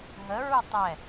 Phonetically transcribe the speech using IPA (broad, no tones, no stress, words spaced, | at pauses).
ɦəɹu tˤɛ